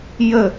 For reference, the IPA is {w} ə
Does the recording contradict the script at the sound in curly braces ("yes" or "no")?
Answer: yes